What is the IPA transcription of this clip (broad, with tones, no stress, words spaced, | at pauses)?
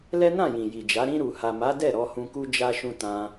lɛ˦nã˦˨jĩ˨ ji˨d͡ʒa˨˦ ɾĩ˧ɾu˨ha˨ma˨˦ dɛ˦˨ɾɔ˧ hũ˧ku˦ d͡ʒa˦ʃũ˦ tã˧